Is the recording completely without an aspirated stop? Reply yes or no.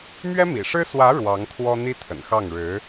no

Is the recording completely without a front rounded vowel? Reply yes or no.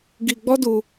yes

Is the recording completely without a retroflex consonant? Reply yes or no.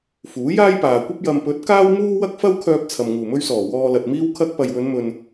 yes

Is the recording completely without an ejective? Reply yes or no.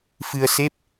yes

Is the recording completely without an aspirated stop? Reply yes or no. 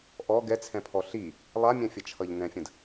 no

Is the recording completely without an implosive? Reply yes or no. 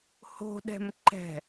no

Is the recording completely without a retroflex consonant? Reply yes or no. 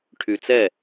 no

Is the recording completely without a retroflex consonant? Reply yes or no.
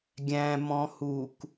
yes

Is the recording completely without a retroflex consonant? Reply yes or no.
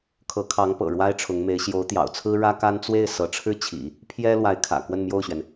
no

